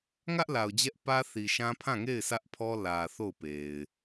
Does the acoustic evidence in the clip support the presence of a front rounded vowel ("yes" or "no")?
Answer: no